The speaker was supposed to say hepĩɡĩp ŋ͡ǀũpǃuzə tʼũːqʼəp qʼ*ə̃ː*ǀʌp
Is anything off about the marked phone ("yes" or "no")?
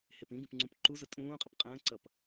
no